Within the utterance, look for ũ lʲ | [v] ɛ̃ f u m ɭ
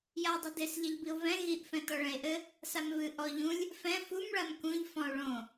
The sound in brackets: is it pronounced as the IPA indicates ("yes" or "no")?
no